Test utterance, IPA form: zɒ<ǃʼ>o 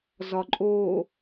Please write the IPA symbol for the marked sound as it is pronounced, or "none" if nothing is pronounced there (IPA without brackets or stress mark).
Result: ǃʼ